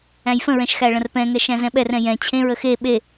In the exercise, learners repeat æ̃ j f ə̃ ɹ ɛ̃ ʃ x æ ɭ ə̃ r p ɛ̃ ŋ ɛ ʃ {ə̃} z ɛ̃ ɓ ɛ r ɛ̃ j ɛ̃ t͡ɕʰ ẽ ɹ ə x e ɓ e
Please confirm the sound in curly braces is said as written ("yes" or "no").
no